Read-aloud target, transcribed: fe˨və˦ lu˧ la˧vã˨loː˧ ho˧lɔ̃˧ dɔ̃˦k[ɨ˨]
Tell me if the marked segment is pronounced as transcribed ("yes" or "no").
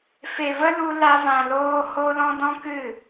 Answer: no